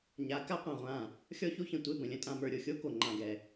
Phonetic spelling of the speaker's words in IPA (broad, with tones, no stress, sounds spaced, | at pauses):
ɲ a˨˦ k a˦ qʷ ã˨ ʁʷ ã˦˨ | xʲ ɔ˦ ç o˦ ç ə̃˨ tʷ e˦˨ b ə̃˨ lʲ ə̃˦ tʼ ã˨ m ə˞˨ ɾʲ o˨ xʲ o˦ k o˨ ŋ͡ǃ ã˦˨ ɡ ɛ˦˨